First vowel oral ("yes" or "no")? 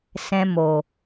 no